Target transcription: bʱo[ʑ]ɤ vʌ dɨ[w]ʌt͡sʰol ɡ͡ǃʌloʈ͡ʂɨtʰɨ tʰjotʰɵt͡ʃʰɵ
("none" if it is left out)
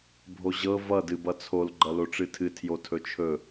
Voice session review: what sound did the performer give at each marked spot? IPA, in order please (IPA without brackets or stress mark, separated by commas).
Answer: ʑ, b